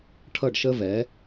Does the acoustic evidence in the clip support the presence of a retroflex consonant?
yes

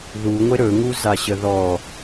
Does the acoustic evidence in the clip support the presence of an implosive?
no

